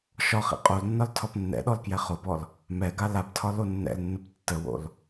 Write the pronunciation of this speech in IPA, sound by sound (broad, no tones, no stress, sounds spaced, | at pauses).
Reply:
ʃ ɒ χ ḭ qʼ o l nː ɒ l tʰ ɒ p nː ɛ̰ ɗ ɔ l k j ɛ χ o p ɔ l | m ɛ ɡ a l a p tʰ ɒ l o nː ɛ̰ l nː ə p tː ə w o̰ l